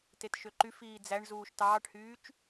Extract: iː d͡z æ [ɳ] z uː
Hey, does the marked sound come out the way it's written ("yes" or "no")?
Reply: yes